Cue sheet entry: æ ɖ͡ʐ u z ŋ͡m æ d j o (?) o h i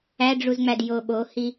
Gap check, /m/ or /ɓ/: ɓ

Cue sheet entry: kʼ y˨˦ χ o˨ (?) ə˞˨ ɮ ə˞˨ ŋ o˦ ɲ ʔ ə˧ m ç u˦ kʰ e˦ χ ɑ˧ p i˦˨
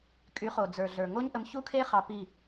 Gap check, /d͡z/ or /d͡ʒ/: d͡z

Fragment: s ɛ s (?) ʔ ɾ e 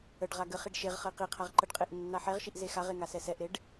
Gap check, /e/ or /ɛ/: ɛ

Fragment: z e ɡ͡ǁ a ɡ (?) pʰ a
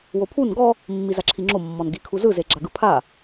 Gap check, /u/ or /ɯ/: ɯ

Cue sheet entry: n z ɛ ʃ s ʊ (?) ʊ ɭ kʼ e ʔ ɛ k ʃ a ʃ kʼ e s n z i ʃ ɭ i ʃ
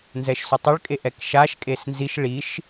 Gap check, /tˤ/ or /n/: tˤ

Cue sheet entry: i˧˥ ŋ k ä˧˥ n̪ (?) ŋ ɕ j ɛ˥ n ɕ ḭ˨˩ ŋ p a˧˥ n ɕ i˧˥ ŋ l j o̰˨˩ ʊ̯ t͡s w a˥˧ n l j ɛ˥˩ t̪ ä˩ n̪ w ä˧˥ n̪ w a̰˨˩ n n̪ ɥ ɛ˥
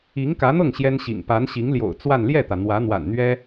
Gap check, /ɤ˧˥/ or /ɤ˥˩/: ɤ˥˩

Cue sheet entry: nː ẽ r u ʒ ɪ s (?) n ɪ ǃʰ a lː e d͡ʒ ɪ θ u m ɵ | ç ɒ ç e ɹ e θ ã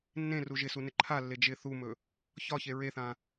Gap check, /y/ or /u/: u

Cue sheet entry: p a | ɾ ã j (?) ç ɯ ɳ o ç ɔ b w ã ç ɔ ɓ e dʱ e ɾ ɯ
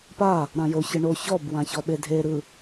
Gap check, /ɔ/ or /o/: o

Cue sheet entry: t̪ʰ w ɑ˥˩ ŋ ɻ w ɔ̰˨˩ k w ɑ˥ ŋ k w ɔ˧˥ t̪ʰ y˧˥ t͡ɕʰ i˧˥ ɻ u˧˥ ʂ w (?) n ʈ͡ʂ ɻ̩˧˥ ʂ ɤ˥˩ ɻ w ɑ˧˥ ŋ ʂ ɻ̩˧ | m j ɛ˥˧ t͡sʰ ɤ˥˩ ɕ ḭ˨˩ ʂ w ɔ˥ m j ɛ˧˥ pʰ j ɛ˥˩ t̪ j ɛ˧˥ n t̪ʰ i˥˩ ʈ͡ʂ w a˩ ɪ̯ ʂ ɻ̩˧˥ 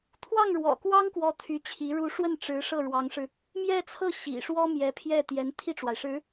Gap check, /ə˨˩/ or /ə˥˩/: ə˥˩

